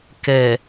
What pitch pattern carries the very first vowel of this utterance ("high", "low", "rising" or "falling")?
low